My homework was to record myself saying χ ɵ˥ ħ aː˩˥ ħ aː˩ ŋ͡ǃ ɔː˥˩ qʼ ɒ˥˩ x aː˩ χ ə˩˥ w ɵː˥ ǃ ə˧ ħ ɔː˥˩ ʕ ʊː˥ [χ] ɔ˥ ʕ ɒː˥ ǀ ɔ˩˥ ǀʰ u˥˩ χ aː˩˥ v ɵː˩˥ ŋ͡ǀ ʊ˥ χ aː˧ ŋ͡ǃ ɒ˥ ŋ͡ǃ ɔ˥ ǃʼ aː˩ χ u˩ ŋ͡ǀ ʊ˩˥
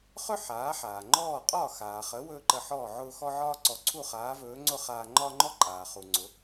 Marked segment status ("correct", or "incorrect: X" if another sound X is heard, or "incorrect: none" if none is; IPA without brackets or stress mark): incorrect: x